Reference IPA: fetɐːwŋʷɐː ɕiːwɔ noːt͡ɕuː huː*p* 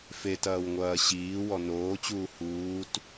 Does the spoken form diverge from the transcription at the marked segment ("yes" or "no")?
yes